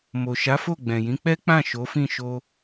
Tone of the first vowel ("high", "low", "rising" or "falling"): low